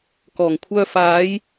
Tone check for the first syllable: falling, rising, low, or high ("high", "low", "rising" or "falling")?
low